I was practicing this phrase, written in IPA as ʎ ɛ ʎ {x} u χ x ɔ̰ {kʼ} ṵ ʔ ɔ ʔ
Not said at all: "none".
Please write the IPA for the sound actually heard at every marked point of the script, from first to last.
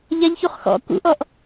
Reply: ç, k

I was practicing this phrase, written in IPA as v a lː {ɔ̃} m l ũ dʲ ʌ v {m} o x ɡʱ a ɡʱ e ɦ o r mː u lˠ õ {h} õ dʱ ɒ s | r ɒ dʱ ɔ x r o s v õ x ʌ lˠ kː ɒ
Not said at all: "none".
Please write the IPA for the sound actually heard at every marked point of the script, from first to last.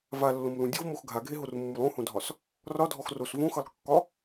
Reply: õ, m, h

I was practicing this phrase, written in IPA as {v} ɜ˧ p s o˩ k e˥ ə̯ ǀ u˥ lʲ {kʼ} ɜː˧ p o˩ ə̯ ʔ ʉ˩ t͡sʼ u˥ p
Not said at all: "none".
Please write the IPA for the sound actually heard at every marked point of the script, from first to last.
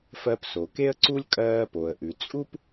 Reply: f, kʼ

